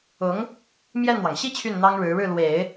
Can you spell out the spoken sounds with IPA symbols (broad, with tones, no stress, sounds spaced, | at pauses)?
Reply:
ʊ˧˥ ŋ | m j ɛ˥˩ n n̪ w ɑ˩ ŋ ɕ i˥˧ t͡ɕʰ y˥˩ n n̪ ɑ˥ ŋ ɻ ɻ̩˧˥ ɻ ɻ̩˥˩ l w e˨˩˦ ɪ̯